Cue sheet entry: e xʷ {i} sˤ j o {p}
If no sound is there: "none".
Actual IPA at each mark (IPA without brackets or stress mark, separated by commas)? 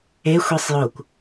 i, kʷ